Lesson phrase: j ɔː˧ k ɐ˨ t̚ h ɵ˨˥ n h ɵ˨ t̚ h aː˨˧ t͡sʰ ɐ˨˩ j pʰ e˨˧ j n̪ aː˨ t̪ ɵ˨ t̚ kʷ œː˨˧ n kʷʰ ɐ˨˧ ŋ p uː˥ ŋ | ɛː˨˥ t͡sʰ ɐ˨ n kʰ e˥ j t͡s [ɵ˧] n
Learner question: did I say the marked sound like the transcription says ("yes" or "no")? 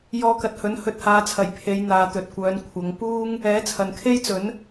no